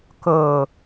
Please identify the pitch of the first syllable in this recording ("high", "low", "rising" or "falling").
low